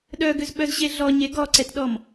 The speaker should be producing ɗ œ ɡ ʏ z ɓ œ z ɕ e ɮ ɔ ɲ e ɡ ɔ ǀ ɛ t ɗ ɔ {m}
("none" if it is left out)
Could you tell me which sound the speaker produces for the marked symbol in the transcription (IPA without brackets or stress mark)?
m